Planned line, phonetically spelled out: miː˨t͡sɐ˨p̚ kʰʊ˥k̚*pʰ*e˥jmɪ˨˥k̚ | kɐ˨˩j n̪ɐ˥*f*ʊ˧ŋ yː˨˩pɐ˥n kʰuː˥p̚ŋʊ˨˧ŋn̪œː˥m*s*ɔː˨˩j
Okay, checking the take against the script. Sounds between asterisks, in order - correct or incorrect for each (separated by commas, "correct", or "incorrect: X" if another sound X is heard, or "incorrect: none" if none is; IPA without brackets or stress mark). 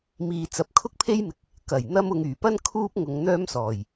correct, incorrect: m, correct